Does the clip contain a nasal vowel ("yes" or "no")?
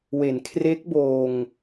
no